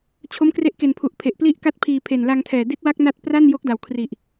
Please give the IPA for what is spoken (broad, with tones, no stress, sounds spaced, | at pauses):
t͡ɕʰ o˦˥ m k r e˦˥ ʔ k e˨˩ n pʰ u˨˩ ʔ pʰ e˨˩ ʔ p l i˥˩ ʔ k a˥˩ t̚ pʰ iː˧ pʰ e˨˩ n l a˧ ŋ tʰ ɛː˨˩ d i˦˥ t̚ w a˦˥ k̚ n a˦˥ t̚ p r a˥˩ n j o˦˥ k̚ d a˨˩ w kʰ r i˨˩ ʔ